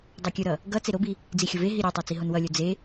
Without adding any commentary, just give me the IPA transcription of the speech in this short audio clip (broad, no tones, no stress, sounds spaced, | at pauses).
dˤ o kʲ ɯ ɾ ʌ | ɡ ʌ t͡s e ɾ o b i | d͡z i xʲ o v e ɦ i ɾʲ o tˤ a t͡s i ɦ o n w ʌ lʲ o d͡z e